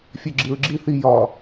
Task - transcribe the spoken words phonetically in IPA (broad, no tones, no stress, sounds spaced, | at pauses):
fʲ ø ɡ͡ǁ i ɹ ɡ͡ǁ i θ i j ɒ